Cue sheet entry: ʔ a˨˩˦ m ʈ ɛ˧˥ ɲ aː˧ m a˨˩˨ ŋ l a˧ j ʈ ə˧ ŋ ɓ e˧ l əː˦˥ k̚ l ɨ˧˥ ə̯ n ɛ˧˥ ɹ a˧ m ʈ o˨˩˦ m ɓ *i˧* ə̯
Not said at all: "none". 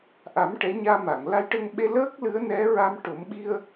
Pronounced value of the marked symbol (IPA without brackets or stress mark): i˧